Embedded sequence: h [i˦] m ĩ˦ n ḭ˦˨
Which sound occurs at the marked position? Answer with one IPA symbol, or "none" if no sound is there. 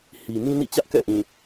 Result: i˨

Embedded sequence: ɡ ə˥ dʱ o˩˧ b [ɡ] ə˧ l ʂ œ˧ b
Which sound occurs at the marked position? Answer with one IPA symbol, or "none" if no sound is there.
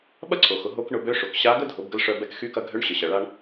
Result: ɡ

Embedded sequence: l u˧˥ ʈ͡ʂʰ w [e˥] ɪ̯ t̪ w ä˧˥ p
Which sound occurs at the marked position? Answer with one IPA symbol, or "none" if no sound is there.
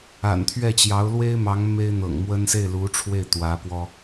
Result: e˥˩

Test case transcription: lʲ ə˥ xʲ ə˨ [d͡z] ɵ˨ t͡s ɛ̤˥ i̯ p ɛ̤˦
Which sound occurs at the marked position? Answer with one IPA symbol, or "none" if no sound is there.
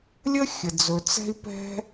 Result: d͡z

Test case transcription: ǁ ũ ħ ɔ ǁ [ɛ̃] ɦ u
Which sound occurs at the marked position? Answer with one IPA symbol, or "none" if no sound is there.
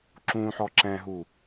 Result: ɛ̃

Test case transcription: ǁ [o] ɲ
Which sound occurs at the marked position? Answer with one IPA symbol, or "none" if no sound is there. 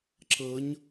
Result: ɤ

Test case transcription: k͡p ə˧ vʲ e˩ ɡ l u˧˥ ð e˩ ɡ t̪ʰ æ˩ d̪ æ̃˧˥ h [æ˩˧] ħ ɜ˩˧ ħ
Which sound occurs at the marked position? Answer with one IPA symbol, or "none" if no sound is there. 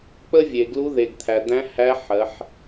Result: æ˧˥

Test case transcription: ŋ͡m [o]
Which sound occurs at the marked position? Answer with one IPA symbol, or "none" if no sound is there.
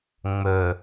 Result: ɵ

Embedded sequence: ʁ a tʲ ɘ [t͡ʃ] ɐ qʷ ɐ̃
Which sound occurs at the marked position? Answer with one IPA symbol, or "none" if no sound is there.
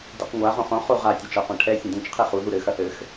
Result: t͡ʃ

